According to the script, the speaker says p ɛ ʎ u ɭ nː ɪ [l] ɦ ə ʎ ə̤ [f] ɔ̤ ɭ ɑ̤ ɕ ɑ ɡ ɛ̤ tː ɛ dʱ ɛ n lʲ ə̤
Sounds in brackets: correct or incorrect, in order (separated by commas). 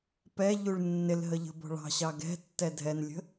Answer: correct, incorrect